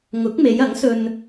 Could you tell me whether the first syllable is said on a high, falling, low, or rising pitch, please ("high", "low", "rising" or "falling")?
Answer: rising